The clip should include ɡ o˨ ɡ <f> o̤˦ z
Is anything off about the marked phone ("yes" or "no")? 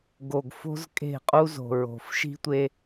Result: no